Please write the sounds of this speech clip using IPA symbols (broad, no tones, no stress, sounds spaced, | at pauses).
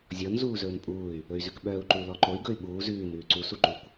zʲ ɔ n z uː z ɵː n pʼ uː y̯ | ɵ y̯ z ʉ k ɓ œː u̯ ǃ u l ɔ ǃ o i̯ ɡ ɵ y̯ ɓ uː z ʉː n ʉː ǀ u s u ǃ ʉ kʷ